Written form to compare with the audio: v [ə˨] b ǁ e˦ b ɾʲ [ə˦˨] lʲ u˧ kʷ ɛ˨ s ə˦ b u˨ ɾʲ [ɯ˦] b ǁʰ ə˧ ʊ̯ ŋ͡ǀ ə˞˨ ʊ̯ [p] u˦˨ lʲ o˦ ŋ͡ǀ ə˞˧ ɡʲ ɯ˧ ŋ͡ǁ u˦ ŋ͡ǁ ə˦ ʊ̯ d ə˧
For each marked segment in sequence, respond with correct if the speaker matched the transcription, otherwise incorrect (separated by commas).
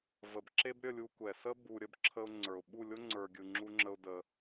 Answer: correct, correct, incorrect, incorrect